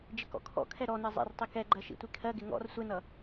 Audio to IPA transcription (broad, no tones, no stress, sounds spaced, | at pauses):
d͡ʒ ɪ k ɔ̰ kʰ ɔ̰ kʰ ɛ ɾ ɔ n ɜ zˤ ɛ̰ r tˤ i k ɛ ɡ͡ǃ ɜ ʃ ḭ tʷ i kʰ ɜ ɡ ɪ ŋ ɔ̰ r sʷ ɛ n ʌ